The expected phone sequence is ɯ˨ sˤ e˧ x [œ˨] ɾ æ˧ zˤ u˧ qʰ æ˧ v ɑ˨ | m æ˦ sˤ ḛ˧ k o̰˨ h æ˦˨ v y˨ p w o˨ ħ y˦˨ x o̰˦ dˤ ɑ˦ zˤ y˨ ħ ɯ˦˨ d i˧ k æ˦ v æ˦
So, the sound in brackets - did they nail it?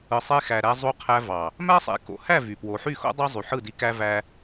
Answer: no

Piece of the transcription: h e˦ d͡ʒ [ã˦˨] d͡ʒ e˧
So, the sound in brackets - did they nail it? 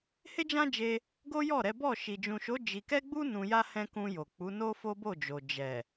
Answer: no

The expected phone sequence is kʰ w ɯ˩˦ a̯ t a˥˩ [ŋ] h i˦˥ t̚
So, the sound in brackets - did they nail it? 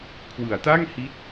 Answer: yes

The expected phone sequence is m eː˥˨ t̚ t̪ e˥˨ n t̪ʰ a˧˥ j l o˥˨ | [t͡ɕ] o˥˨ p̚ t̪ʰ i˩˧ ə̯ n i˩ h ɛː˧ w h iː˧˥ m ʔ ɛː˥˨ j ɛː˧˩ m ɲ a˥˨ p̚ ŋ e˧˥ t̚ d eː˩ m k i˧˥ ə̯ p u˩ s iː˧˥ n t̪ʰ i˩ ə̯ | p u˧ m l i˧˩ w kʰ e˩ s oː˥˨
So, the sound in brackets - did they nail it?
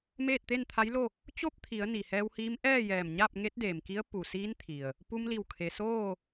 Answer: yes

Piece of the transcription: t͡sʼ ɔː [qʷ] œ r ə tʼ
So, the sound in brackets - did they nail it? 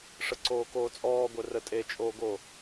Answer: no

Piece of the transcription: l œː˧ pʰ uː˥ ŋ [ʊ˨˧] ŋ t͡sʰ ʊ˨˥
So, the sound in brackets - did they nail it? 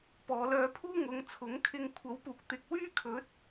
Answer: yes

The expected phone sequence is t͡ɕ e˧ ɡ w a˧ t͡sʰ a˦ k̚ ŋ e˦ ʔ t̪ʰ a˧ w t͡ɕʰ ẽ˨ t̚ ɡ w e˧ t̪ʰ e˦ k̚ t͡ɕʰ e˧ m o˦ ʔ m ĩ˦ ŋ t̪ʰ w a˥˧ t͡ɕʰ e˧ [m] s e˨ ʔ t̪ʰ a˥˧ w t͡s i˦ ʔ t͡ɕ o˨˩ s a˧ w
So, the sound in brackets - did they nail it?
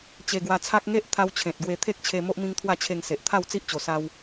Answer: no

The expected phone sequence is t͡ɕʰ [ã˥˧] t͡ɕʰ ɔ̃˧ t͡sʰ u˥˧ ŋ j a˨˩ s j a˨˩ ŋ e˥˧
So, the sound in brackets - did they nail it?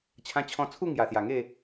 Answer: no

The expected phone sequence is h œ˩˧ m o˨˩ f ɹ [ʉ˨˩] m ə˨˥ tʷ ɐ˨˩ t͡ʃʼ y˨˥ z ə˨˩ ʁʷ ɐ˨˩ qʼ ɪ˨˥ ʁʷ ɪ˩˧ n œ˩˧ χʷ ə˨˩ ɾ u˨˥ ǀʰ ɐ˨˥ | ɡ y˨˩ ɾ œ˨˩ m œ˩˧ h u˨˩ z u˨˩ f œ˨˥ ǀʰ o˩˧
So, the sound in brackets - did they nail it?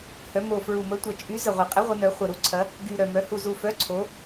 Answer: no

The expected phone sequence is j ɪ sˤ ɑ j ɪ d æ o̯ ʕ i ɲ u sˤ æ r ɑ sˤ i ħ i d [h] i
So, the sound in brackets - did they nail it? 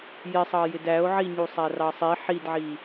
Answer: no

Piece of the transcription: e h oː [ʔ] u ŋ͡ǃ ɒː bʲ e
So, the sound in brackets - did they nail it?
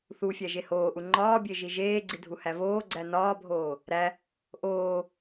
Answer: yes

